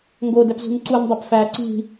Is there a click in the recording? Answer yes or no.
yes